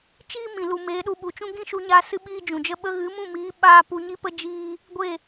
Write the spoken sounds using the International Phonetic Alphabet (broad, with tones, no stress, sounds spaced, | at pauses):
t͡ʃ iː˦ m ĩ˨ l u˨ m eː˨˦ ɗ u˧ ɓ u˨ t͡ʃ ũ˦ ɡ ĩ˦ ʃ u˧ ɲ aː˧ s ɨ˦ ɓ iː˦ d͡ʒ ũ˨ d͡ʒ ə˦ ɓ ə˧ ɣ ɨ˨˦ m ũ˦˨ m iː˨˦ ɓ aː˦ p u˧ ɲ i˦ p ə˦ d͡ʒ iː˦ | ɡʷ e˦˨